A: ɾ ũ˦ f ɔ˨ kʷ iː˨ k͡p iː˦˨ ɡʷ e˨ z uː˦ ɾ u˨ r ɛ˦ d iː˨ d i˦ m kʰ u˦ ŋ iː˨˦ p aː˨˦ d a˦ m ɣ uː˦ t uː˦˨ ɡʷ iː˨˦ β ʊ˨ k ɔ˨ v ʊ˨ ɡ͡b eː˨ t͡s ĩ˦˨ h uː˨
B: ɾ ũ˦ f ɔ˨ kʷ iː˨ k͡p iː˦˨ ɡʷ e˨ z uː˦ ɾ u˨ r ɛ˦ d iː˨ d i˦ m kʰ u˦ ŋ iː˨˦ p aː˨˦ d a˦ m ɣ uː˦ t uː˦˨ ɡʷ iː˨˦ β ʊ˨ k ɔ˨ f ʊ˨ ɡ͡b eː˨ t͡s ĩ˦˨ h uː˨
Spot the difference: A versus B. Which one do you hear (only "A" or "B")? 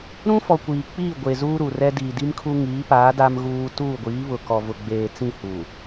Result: A